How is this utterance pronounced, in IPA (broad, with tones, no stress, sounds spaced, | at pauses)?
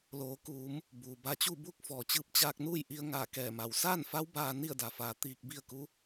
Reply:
l oː˩˧ k uː˩˧ m | b uː˩ b a˧ t͡ɕ u˥˨ b u˥˨ k̚ f ɔː˩ t͡ɕ ɯː˧ p̚ t͡ɕ aː˧ k̚ n uː˥˨ j ʔ i˧ ə̯ ŋ aː˧˩ k ɛː˧˩ m a˩˧ w s aː˥˨ n f a˧˥ w b aː˧ n i˥˨ ə̯ d a˩ f aː˩˧ t̪ iː˧ k̚ b i˥˨ ə̯ k u˧˥